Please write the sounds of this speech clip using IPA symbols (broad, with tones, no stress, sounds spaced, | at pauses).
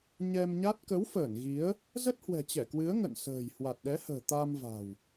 ɲ ɛ˧ m ɲ a˦˥ t̚ k ə˨˦ w f əː˧˩ n ɣ i˨˦ ə̯ | z ə˦˥ t̚ h w ɛ̤˨˩ t͡ɕ ɛ˧˩ k w ɨ˨˦ ə̯ ŋ ə̰˧˨ n s ə̤ː˨˩ j h w a˨˩ t̚ ɗ ɛ˨˦ h ə̤ː˨˩ t̪ a˧ m v a̤˨˩ w